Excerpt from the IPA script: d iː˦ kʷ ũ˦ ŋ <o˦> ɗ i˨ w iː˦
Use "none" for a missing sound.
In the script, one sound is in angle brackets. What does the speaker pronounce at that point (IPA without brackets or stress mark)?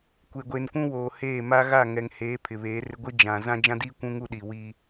u˦